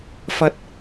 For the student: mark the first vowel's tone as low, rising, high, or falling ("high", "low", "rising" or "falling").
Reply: high